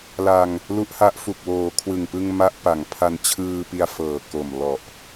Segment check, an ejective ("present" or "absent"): absent